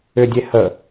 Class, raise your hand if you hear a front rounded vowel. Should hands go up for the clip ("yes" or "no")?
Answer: yes